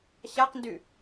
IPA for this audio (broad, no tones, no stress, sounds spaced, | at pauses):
ɕ a q n d y